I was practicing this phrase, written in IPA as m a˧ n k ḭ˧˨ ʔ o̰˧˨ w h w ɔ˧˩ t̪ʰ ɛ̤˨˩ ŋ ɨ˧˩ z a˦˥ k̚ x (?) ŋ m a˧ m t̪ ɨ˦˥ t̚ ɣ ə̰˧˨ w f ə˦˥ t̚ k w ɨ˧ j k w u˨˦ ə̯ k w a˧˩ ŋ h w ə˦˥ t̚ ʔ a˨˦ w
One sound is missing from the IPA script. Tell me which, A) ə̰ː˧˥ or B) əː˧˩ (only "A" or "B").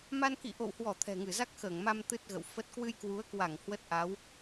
B